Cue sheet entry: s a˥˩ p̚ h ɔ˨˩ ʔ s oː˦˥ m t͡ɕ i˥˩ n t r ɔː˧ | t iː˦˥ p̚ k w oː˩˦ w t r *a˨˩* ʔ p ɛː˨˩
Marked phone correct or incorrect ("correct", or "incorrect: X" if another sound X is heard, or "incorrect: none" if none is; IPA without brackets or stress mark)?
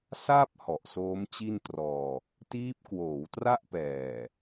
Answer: incorrect: a˥˩